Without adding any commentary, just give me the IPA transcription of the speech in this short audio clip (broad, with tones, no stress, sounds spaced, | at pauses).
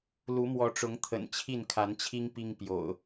l u˨˦ m w ɔ˨˦ ʈ͡ʂ ʊ˨˦ ŋ t̪ʰ ə̰˨˩ n t͡ɕʰ i˥˨ n kʰ a˨˦ n t͡ɕʰ i˦ ŋ p i˦ ŋ p j o̰˨˩ ʊ̯